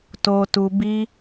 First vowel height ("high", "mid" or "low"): mid